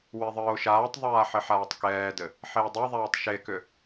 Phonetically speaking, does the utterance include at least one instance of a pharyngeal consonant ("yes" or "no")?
yes